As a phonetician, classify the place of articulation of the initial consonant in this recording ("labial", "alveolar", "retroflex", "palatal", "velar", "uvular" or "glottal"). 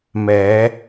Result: labial